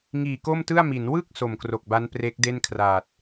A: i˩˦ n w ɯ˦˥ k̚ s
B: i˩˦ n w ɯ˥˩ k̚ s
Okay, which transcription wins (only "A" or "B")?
B